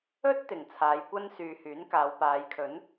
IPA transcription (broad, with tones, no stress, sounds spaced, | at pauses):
ɵ˥ t̚ t̪ ɪ˨˩ ŋ t͡sʰ aː˨˧ j kʷ ɐ˥ n s yː˨ h yː˨˥ n k aː˨˧ w p aː˨˧ j kʰ ɵ˨˥ n